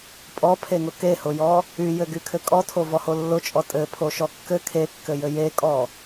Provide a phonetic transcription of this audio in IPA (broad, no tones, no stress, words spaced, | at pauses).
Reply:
pʼɔpʰeŋʊ kehʊjɔ | yjɘɡykʰɘ kʼɔtʰovɔho lːʊt͡ʃʼɔ tʼɘpʰoʃɔ kːɘ kʰekːɘjɘ jekʼɔ